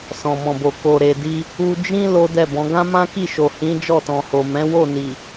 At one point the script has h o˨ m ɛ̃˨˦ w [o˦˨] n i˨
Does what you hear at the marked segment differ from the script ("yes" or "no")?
no